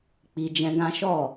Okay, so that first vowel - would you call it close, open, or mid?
close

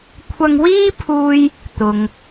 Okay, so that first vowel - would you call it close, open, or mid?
open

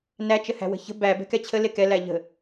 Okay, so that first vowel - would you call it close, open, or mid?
open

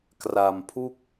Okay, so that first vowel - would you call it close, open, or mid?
open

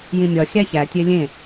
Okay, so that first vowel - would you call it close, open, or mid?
close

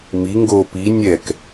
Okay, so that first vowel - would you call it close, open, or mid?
close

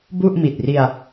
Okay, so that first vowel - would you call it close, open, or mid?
close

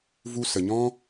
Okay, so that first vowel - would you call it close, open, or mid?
close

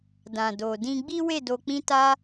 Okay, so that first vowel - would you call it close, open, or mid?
open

